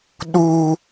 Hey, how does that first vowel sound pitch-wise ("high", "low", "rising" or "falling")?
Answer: high